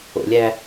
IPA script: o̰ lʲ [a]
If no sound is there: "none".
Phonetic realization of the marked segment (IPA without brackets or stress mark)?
æ